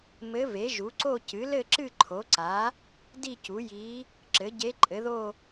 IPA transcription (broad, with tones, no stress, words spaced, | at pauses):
mɘ˧˥ve˩˥ʒu˩˥ǀo˥˧ cɨ˩˥lɘ˥˧ǁɨ˥˧ ǃʰo˩˥ǀa˩˥ | di˥˧cu˩˥ji˧˥ | ǁɘ˩˥ ɟe˧˥ǃʼɘ˩˥ðo˥˧